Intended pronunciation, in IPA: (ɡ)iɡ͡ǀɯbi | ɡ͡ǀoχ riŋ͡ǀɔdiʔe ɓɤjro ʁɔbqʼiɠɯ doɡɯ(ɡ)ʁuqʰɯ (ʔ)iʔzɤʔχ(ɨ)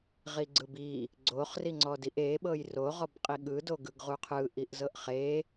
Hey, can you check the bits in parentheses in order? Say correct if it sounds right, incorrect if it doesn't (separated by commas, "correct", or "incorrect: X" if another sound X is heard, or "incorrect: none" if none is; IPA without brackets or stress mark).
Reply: incorrect: ʁ, correct, correct, incorrect: e